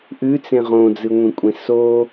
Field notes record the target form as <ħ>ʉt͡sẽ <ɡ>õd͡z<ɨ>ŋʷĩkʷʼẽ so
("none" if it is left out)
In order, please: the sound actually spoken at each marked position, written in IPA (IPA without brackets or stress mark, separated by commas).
ʔ, ʁ, ɨ